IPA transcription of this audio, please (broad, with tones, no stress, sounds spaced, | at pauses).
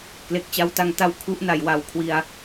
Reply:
k l e˨˩ k̚ t͡ɕ a˦˥ w t a˧ ŋ t a˦˥ w kʰ u˦˥ ʔ n a˩˦ j w a˨˩ w kʰ w i˧ a̯